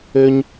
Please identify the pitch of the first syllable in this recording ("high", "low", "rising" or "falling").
high